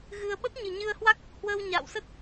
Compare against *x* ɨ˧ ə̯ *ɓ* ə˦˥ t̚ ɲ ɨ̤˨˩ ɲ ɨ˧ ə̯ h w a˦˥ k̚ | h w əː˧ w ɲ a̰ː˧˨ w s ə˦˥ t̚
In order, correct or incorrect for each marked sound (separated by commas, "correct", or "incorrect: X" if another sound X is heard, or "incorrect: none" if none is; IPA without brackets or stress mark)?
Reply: incorrect: ɣ, correct